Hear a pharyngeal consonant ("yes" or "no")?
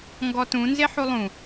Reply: yes